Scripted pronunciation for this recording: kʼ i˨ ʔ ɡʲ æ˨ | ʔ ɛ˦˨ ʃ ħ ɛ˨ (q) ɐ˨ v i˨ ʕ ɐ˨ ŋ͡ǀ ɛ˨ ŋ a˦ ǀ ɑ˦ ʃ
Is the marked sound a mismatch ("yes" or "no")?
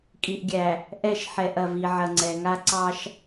yes